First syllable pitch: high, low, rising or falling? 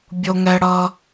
high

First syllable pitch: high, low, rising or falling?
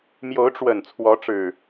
rising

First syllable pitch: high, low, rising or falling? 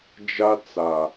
high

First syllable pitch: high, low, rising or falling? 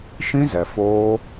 high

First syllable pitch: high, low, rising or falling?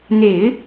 low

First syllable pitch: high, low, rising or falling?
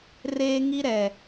high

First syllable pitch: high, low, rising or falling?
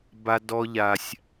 high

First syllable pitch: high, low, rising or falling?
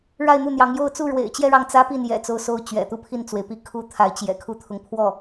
falling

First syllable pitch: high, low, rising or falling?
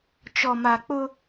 low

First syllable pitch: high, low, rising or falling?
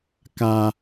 high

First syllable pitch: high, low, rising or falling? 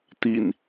low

